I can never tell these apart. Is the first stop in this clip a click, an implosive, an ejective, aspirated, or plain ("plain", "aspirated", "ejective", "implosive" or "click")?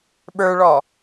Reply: implosive